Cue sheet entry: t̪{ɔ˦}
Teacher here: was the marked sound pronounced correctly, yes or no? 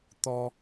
yes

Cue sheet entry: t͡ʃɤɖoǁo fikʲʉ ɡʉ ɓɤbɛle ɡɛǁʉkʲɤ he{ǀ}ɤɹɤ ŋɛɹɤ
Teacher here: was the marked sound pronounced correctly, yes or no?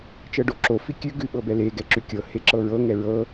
no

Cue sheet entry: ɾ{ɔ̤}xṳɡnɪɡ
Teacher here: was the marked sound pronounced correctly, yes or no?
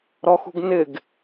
no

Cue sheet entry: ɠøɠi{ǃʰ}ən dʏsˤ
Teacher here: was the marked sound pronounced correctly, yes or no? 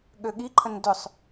yes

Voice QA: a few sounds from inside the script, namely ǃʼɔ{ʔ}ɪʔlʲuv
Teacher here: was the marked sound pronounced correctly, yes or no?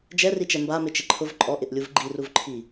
yes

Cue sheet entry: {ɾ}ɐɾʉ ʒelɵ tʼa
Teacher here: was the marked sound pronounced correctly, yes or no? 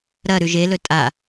yes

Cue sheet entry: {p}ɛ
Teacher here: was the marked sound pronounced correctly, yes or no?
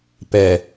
yes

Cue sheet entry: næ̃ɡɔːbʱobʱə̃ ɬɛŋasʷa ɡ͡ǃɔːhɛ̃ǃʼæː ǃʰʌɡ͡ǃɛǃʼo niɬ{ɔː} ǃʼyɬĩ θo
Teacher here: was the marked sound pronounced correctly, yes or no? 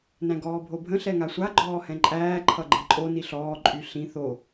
yes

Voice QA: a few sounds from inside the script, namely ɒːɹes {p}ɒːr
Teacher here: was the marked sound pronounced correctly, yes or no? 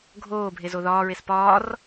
yes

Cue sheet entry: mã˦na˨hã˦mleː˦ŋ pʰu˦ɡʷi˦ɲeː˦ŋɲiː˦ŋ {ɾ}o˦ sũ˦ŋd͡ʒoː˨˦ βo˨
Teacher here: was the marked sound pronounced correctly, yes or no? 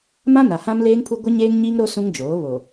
yes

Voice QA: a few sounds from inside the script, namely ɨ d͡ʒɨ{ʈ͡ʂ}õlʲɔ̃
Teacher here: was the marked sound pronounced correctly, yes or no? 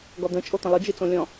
no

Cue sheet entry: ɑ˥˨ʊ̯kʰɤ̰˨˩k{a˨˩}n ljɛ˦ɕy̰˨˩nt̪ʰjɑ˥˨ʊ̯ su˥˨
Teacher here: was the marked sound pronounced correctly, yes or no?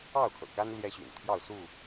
no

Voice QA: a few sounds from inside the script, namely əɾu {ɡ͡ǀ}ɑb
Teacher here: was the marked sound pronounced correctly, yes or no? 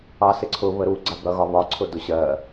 yes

